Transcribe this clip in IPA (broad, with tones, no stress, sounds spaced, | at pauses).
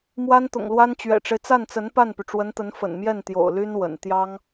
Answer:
m w a˥ n t̪ ʊ̰˨˩ ŋ l w a˥ n t͡ɕ ɥ ɛ̰˨˩ ʈ͡ʂ e˦ ɪ̯ t͡s a˥˩ n t͡s ə˧˥ n p a˥˩ n p y˩ ʈ͡ʂ w ə˧˥ n t̪ ə˧˥ n f ə̰˨˩ n m j ɛ˥˩ n t̪ j o̰˨˩ ʊ̯ l y˥ n w ə̰˨˩ n t̪ j ɑ˥ ŋ